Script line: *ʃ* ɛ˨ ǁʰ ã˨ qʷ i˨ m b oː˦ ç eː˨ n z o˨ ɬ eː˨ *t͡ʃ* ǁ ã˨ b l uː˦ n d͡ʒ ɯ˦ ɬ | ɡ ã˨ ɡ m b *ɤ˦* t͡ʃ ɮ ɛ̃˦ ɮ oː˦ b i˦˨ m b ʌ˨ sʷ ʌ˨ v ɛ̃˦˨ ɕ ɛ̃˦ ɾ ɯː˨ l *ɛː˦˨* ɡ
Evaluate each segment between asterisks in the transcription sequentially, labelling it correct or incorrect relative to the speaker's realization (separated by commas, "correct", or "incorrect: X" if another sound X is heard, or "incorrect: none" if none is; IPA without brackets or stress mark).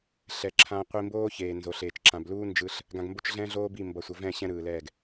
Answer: incorrect: ɬ, correct, incorrect: o˦, correct